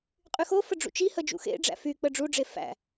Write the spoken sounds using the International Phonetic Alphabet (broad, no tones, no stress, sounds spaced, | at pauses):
qʼ y x o f ə ɖ͡ʐ ṵ t͡ʃ i h ə d͡ʒ ṵ x ḛ ɖ͡ʐ æ̰ f y k͡p ə ɖ͡ʐ u ɖ͡ʐ e f æ̰